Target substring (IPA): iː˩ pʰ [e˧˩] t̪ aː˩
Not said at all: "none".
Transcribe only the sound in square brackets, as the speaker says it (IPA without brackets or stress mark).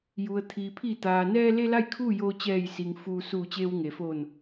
i˧˩